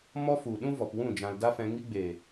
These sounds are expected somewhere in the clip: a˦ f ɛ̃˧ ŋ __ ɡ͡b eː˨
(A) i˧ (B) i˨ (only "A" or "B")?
A